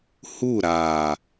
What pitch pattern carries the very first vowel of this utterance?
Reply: falling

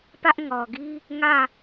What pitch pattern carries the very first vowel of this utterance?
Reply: high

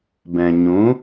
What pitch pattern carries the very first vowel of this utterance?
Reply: low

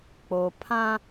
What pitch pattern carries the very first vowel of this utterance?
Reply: low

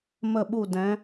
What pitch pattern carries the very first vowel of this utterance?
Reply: falling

